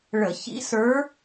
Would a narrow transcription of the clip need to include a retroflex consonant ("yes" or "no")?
yes